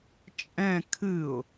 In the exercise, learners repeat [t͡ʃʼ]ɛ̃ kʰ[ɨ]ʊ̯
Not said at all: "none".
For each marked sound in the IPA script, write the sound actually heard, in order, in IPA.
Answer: t͡ʃʼ, ɨ

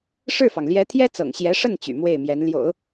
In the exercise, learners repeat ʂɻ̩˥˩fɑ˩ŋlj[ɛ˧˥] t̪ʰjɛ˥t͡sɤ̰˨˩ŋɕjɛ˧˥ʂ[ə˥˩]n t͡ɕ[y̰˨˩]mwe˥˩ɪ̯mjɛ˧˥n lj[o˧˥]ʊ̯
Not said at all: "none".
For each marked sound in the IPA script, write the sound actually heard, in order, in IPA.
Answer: ɛ˧˥, ə˥˩, y̰˨˩, o̰˨˩˦

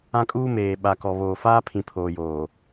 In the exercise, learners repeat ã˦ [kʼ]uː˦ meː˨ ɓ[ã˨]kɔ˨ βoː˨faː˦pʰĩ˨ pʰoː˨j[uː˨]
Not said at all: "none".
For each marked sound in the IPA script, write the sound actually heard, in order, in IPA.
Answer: kʼ, a˨, oː˨

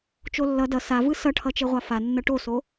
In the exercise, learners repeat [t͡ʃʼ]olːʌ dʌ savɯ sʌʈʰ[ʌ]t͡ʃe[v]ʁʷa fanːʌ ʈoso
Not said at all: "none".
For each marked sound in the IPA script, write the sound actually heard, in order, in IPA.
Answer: t͡ʃ, ʌ, none

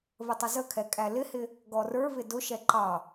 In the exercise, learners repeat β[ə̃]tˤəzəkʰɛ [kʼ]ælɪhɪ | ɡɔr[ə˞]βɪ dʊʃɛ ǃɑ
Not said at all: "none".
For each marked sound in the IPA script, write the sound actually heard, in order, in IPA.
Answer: ə, kʼ, ə˞

